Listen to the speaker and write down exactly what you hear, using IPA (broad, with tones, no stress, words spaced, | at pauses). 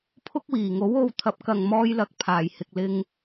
pʰʊ˥k̚wiː˨˩ŋo˨˥w o˧w t̪ʰɐ˨˥p̚kɐ˨ŋmɔː˧jlɐ˨k̚ pʰaː˨˩jhɪ˨k̚lɪ˧ŋ